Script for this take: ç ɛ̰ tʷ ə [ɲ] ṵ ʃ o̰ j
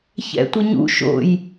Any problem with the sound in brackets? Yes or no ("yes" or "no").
no